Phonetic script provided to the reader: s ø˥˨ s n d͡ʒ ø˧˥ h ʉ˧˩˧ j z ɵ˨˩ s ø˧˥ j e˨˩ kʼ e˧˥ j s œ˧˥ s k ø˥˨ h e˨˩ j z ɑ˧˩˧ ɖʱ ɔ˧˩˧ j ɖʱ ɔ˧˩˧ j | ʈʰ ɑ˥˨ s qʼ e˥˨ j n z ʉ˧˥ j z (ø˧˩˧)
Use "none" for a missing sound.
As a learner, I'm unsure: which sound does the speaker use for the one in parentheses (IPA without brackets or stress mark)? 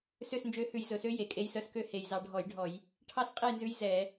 ɛ˧˩˧